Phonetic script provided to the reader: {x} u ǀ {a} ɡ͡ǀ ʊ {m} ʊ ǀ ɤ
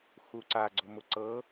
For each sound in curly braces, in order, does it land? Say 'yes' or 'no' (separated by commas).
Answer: yes, yes, yes